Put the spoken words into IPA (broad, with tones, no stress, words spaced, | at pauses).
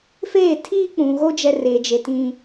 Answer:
feː˦˨ tʰiː˦k͡pũ˨ɣo˦ d͡ʒɛ˦re˨d͡ʒe˨ tĩ˦